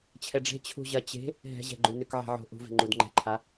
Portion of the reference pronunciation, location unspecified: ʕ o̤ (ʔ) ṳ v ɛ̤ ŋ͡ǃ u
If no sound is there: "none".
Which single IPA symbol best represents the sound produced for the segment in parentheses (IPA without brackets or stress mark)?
ʔ